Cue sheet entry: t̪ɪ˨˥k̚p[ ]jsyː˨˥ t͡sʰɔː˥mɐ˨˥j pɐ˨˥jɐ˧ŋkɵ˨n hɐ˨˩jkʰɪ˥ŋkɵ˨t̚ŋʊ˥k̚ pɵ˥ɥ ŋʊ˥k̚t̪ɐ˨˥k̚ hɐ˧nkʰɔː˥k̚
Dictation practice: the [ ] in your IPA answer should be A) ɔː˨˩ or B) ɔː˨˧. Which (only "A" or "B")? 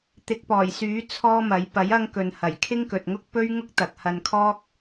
A